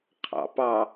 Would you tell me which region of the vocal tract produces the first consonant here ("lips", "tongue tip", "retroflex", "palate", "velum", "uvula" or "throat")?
uvula